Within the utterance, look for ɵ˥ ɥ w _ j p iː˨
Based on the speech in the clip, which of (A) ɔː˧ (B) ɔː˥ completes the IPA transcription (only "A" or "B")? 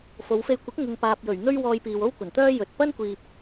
A